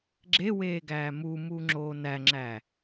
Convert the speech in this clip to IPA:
ɡ͡ǁeweːɡæː mumuŋ͡ǁoː næŋ͡ǁæː

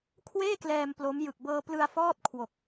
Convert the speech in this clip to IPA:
kʰweː˥˩klɛː˧m plo˦˥mjɯ˨˩k̚ bɤː˧plɯ˧a̯ fɔː˥˩t̚ kʰwo˨˩k̚

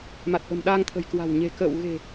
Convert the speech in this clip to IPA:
ma˨˩t̚ʔə̤˨˩mɗaː˧ŋt̪ʰə̤˨˩j kwa̤˨˩w ɲe̤˨˩kə̰ː˧˨w ɣe̤˨˩

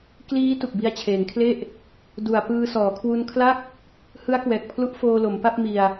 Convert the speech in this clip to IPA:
kliː˦˥ tu˨˩k̚bi˧a̯t͡ɕʰeː˩˦ŋkʰle˥˩ʔ | du˨˩a̯ pɯː˧sɔː˩˦kʰwu˧nkʰla˥˩k̚ | hɯ˦˥a̯kwɛː˨˩k̚pʰlu˦˥ʔfoː˧ lo˩˦mpa˥˩p̚ mi˧a̯

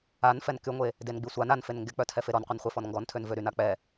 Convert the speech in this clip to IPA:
an fɛnkyŋʷe | denɡ͡bisʷan anfen ŋɡek͡pœtʰɛfe ɾɔnqʷɛnχʷefɔn ŋɡɔntʰønvø ɾyn ak͡pɛ

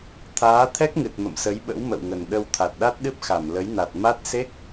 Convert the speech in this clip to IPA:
t̪ʰaː˨˦t̪ʰɛ˦˥k̚ŋɨ˨˩t̚ mə̰˧˨msə˨˦jɓə̰˧˥w mə̰˧˨wŋə˨˩nɗə˧w t̪ʰa˨˩t̚ɗa˦˥t̚ɗɨ˦˥p̚ xa˧˩mlə˨˦jna˨˩t̚ ma˦˥t̚ se˦˥k̚

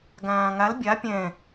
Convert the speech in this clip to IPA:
ɡãːŋal bʲa pʲɛ̃

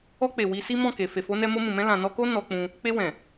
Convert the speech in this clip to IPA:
ɔ˧k͡pe˨ wi˧si˦mɔ̃˦˨ke˨ fe˨fo˨˦nɛ˧ mo˧mũ˨mɛ̃˧ lã˨ nɔ˧ko˦ nɔ˧k͡pũ˧ | k͡pe˧wɛ̃˨

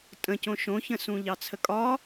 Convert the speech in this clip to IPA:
tʼə̃cõ ʃõçə̃ sũʎɑt͡sʰəkʼɒ

